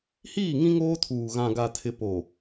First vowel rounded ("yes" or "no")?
no